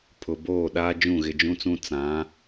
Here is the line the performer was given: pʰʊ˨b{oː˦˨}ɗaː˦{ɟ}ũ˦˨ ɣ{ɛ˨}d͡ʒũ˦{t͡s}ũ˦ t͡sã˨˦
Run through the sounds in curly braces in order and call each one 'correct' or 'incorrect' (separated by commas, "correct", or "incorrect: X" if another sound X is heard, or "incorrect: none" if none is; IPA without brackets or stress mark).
correct, incorrect: d͡ʒ, incorrect: ɪ˨, correct